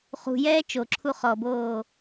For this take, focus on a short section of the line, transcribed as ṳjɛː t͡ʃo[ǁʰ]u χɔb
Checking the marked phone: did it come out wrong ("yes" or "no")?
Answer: no